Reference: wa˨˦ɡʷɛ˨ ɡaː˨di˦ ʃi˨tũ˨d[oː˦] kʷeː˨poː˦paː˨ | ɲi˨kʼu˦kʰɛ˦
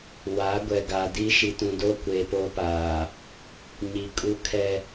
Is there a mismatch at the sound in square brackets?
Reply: no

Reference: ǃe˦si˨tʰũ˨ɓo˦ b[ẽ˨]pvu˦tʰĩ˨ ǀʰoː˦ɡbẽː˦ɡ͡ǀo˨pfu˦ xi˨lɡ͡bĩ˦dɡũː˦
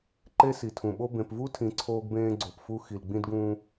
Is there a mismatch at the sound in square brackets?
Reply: no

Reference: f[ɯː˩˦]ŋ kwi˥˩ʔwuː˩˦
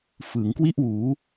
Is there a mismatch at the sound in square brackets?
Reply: yes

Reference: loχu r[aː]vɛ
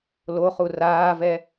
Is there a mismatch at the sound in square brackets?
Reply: no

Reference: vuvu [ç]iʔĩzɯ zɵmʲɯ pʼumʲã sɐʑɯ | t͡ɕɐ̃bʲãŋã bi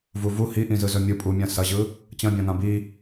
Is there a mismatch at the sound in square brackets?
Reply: yes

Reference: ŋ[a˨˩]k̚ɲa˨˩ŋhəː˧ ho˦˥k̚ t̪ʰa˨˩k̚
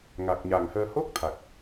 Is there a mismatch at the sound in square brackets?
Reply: no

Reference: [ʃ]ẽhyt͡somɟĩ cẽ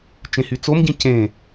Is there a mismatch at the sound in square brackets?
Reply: yes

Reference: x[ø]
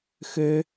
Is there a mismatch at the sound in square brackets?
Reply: no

